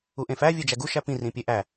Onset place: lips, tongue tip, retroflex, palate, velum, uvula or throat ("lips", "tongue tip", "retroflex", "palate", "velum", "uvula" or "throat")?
throat